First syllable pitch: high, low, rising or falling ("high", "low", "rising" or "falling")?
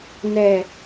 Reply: low